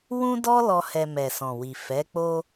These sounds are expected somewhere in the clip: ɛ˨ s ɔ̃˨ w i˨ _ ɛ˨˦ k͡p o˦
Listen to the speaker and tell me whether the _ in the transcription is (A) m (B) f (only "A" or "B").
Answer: B